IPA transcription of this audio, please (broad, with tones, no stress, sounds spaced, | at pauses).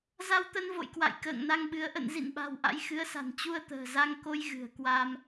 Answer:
z a˧ w t̪ ə˧ n v o̰˧˨ j k w a̰˧˨ j k ə̰ː˧˨ ŋ n a˧ ŋ ɓ ɨ˨˦ ə̯ ʔ ə̰˧˨ n z ḭ˧˨ n ɓ a̤˨˩ w ʔ a̰˧˥ j x ɨ˨˦ ə̯ s a̤˨˩ n t͡ɕ u˧ ə̯ t̪ ə̤ː˨˩ z a˧ ŋ k o˧ j ɣ ɨ̤˨˩ ə̯ k w a˧ m